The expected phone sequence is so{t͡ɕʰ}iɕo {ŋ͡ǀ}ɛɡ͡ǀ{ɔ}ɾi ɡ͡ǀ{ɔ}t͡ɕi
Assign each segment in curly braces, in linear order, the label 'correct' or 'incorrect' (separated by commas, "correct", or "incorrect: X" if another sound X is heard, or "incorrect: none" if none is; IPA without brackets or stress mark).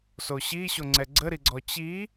incorrect: ɕ, correct, incorrect: ə, correct